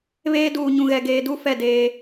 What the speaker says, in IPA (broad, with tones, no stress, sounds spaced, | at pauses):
β eː˦ d uː˨ ɲ ũ˨ ɣ ɛ˨ ɡ eː˨ d u˦ f ɛ˦˨ d eː˦